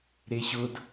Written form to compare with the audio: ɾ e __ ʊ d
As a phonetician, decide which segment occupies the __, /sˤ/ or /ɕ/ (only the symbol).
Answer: ɕ